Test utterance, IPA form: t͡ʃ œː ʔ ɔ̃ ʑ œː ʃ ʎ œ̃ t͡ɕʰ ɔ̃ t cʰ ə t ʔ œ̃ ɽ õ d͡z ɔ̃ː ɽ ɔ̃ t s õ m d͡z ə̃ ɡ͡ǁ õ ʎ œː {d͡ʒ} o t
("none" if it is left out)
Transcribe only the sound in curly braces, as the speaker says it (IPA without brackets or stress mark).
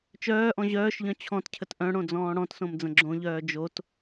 d͡ʒ